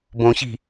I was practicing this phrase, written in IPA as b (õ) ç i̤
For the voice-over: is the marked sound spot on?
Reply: yes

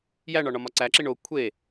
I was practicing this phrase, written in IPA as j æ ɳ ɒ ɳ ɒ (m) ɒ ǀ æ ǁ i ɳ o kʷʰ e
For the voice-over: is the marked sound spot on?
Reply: yes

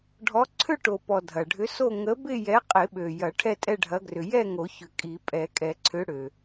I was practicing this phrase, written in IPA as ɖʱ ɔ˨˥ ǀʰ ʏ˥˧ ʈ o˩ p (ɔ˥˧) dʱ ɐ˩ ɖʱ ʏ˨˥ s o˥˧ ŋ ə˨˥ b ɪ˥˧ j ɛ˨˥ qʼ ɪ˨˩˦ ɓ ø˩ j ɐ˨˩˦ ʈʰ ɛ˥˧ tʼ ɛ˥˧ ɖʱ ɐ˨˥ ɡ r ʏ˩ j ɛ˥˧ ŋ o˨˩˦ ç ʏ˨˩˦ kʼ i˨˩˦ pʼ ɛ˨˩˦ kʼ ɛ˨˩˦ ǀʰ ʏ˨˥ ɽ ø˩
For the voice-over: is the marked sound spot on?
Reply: no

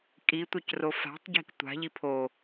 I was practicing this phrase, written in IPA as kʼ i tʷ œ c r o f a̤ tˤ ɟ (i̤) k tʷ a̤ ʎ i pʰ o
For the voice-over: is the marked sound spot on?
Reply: yes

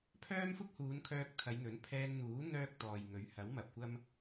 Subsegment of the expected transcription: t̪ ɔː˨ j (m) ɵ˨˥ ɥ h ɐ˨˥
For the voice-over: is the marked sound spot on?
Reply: no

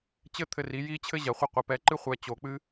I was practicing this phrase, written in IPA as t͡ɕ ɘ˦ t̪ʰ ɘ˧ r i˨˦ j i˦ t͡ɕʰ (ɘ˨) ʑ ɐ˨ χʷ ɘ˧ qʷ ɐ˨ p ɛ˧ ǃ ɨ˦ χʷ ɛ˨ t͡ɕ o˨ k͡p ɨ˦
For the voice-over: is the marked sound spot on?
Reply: no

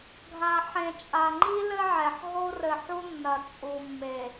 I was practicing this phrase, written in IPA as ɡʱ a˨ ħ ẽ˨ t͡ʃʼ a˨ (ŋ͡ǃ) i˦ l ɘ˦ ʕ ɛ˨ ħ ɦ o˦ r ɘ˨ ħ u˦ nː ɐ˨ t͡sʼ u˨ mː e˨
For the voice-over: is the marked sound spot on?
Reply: yes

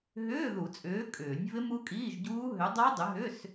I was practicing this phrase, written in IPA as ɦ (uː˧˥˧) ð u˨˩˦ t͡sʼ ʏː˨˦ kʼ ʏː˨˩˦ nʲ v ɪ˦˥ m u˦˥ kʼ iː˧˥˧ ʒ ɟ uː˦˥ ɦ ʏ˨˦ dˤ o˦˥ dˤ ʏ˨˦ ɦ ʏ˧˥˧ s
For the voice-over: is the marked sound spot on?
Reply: no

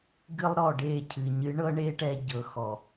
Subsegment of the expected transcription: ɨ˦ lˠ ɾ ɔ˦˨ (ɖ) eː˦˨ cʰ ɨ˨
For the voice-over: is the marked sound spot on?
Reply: yes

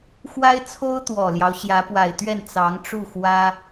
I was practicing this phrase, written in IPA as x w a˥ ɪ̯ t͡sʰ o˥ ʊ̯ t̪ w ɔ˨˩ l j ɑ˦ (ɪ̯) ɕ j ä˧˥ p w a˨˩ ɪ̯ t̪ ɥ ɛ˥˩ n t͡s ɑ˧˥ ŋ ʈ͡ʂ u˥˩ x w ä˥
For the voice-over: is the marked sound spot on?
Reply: no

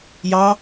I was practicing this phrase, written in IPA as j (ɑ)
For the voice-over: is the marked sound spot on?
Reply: yes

